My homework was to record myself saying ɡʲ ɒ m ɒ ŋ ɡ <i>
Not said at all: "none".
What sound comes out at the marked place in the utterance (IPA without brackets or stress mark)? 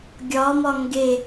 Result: e